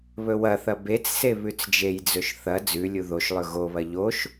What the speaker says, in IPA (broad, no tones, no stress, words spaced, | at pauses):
βɵwɐθɐ bet͡sse βʉt͡sd͡ʒejd͡zɵʃ θɐ d͡zʉlʲu ðoʃlˠɵ ɣoβɐ ʎoʃ